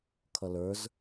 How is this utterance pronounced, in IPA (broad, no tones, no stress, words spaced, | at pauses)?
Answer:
kʰʌlə˞z